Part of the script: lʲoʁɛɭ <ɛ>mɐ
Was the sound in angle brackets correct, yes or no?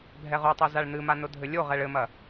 no